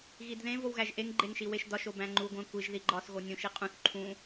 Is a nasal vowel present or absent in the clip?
present